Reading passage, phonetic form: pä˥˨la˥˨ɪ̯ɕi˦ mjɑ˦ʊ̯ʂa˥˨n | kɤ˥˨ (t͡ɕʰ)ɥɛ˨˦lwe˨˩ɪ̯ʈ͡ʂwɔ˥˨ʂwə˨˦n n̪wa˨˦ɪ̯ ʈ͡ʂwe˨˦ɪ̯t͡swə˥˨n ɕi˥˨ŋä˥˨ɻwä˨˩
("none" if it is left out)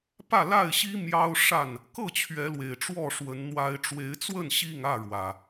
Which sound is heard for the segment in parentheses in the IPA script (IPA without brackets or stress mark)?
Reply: t͡ɕʰ